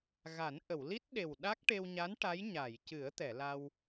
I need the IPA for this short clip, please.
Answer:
ɣa˨˩˦nʔə˨˩˨w li˦˥t̚ɗe˨˩w ɗa˦˥k̚ʈe˧wɲa˧˥n ʈa˧˥j ɲa˨˩˨jcɨ˨˩˦ə̯ t̪ɛ˨˩˨la˧w

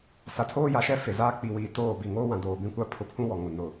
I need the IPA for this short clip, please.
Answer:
sa˨tʰoː˦ja˨ʃɛ˦ fe˨zaː˦ k͡pi˨wiː˨ toː˦˨ bi˨ŋoː˦wã˨ doː˨bĩ˦kʷa˦ pʰʊ˨pʰũ˦ wɔ˨ŋʊ˨ nʊ˨

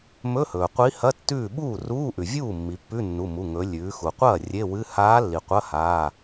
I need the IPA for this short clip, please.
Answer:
mɵ˧˥˧hɵː˩ qʷi˧˥hɐ˧˥˧ tːʉː˥˩ ɓuː˥˩ruː˧˥˧ʔʉ˩vʲuː˥˩ mːi˩˧pːʉ˧˥˧nːu˩˧˩mu˩˧˩ ŋɵ˩˧ lʲʉː˩˧xu˩qʷɐː˥˩ rʲe˧˥˧wɨ˧˥˧ haː˧˥lːi˩ qʷɐ˧˥˧haː˩˧˩

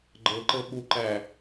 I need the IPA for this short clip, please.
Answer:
ɡ͡ǃɤǃɤ ɓuǃæ

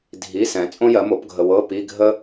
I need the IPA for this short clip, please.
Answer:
dʱi˧˥˧sɛ̃˧ t͡sʼõ˥jɜ˨˥ mo˨˥pɡʱə˧ wɤ˧˥˧ pi˧˥˧ɡʱə˥

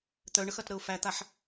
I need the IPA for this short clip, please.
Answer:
t̪œɳəxɐtɾəʊ̯ fæt̪aħ

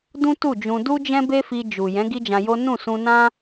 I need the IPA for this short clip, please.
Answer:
dũ˦tu˦˨d͡ʒũ˧ du˦d͡ʒɛ̃˦ be˦fi˧ d͡ʒu˨jɛ̃˨˦ ɡi˦d͡ʒã˧jo˦ nũ˦˨sũ˧nã˦

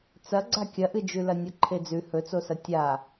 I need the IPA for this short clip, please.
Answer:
t͡sɐɡ͡ǀa kʲɐʔɨd͡ʒʉlɐ nʲoǃʰed͡zʉ hɵt͡sosɐ tʲa

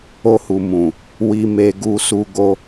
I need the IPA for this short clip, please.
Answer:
o˧hu˨ mũ˨ | wi˧me˧ ɡu˧su˧ ɡo˧

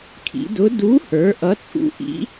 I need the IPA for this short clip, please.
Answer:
kʰḭ˩˧dʊ˨˥ du˨˥hə˞˩˧ ʔʌ˨˥t͡sʼṵ˨˥ʔḭ˨˥

